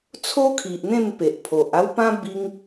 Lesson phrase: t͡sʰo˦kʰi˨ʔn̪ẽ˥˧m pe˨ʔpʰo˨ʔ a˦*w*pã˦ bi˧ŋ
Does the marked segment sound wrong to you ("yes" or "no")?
no